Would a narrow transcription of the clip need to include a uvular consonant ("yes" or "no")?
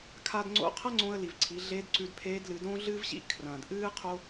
yes